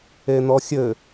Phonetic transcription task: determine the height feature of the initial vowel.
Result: mid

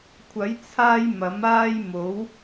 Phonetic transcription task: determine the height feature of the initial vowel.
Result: low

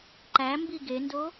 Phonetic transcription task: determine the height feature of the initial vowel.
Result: low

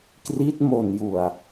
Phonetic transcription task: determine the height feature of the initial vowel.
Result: high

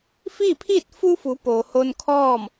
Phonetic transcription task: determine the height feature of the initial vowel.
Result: high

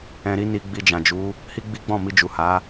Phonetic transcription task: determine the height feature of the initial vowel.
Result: mid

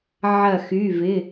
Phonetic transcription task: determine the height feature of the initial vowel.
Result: low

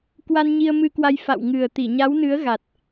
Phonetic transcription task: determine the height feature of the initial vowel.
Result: low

